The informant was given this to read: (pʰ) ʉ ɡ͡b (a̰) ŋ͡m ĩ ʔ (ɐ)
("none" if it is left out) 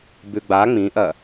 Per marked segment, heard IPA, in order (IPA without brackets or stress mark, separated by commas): b, a, ɐ